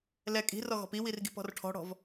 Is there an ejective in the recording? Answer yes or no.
yes